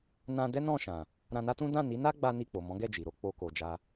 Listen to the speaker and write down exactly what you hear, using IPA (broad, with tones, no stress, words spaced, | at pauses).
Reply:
nã˧ dɛ˦nɔ̃˦˨ʃã˨ | ɾã˧na˦tũ˦ dã˦˨ni˨˦na˦ ɡ͡ba˦ni˦˨k͡po˨ mɔ̃˨˦ɡɛ˦˨ d͡ʒi˨ɾo˨˦ k͡po˦ko˧d͡ʒa˦